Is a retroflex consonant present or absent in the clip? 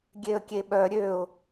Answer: absent